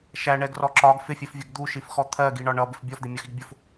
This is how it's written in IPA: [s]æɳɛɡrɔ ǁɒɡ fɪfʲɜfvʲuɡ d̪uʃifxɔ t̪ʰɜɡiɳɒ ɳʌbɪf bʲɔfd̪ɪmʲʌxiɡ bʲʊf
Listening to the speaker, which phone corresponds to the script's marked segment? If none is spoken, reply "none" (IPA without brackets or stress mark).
ʃ